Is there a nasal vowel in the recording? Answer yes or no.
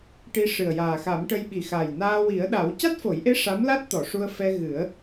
no